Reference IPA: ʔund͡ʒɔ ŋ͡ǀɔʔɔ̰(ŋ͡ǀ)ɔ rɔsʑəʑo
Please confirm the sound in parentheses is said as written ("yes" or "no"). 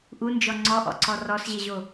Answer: no